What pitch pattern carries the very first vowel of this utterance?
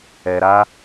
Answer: low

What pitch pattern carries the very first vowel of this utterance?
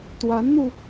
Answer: rising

